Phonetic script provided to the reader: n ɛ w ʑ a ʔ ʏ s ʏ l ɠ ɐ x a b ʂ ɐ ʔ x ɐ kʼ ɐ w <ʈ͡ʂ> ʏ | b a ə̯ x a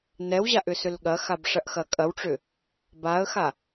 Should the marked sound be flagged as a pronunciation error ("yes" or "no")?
no